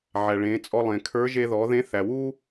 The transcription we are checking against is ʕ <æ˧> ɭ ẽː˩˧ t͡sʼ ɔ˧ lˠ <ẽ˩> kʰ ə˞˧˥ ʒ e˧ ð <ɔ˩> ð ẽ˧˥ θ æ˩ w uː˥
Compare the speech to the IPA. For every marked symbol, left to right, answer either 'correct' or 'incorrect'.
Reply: incorrect, correct, incorrect

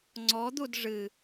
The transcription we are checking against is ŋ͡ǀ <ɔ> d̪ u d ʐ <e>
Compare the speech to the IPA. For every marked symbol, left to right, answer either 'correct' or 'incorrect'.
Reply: correct, incorrect

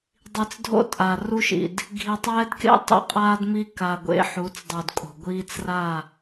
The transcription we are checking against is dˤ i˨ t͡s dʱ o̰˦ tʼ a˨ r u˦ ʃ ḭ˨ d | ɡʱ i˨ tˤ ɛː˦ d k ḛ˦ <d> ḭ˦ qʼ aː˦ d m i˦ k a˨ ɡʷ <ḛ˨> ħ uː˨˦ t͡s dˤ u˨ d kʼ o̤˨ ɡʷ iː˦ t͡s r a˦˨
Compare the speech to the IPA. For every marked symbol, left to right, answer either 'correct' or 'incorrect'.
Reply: incorrect, incorrect

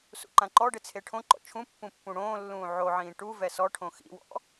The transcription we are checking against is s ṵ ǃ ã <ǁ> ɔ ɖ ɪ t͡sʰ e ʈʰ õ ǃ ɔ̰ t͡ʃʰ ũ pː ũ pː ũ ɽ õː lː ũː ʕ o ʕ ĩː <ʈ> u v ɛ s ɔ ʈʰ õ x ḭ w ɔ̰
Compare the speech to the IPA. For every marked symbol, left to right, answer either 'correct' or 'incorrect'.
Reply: incorrect, correct

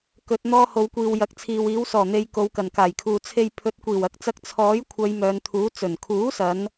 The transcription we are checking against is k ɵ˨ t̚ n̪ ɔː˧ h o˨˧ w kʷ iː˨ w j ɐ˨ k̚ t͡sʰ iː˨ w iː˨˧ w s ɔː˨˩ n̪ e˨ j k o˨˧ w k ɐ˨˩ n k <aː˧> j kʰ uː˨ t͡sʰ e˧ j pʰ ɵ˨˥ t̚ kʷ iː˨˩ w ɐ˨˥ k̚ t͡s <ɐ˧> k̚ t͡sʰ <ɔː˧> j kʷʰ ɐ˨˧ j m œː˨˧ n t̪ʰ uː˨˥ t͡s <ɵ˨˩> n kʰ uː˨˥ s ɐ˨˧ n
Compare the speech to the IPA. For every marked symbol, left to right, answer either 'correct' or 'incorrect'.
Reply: incorrect, correct, incorrect, correct

